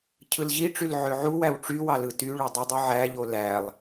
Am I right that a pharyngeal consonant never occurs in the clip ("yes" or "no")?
no